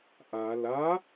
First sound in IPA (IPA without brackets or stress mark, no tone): ʔ